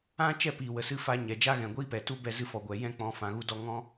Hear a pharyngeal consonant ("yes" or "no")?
no